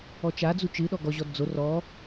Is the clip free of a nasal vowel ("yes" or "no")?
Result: yes